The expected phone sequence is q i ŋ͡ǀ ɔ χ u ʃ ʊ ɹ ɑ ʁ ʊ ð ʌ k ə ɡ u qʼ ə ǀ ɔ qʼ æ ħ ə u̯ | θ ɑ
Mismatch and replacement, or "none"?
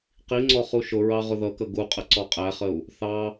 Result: ħ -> χ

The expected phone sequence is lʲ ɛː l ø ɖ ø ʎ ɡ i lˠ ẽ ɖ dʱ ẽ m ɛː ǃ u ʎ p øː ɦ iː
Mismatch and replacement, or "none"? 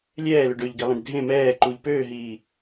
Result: none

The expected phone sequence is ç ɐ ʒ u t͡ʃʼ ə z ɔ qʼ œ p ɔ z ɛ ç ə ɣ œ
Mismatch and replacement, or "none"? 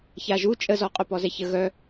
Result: ɐ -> a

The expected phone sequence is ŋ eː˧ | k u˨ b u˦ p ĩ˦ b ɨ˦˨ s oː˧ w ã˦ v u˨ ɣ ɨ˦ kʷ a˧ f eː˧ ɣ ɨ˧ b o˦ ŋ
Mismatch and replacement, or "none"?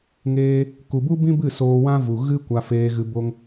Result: p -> b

